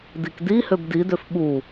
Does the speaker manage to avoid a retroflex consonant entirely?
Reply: yes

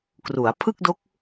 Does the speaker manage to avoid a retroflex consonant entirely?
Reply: yes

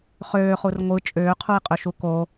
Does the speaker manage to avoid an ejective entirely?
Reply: no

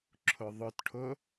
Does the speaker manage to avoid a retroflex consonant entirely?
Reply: no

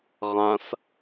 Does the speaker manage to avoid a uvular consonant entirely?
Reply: no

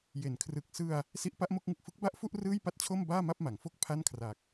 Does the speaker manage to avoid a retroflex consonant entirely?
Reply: yes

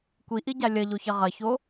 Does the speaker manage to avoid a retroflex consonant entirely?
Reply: yes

